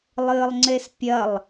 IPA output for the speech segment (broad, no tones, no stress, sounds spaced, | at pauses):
lˠ ɨː lˠ ŋ͡ǀ e s pʲ ɐ lˠ